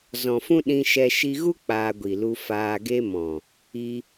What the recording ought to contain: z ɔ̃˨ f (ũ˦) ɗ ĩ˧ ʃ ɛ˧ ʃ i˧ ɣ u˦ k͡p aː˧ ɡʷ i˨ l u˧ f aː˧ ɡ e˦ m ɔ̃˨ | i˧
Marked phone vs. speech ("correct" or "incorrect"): correct